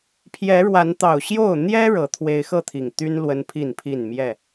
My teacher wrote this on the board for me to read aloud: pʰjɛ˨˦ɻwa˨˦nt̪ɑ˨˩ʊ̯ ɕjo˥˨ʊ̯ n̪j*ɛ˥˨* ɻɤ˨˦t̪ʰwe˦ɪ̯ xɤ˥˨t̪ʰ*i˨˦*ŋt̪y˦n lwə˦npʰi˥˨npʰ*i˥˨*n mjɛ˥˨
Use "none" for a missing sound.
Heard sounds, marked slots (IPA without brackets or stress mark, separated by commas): ɛ˦, i˨˩, i˥˨